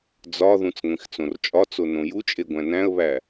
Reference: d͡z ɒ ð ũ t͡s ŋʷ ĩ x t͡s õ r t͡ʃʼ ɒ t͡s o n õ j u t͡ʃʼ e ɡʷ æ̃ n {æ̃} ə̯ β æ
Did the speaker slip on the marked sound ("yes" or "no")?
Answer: no